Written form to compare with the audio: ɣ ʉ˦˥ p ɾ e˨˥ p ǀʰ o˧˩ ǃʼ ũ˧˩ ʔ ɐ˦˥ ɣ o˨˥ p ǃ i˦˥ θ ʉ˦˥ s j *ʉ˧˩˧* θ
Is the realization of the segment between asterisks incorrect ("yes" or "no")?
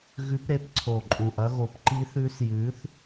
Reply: yes